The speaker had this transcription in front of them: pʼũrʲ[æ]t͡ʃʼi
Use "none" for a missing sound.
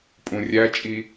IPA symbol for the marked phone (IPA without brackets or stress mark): æ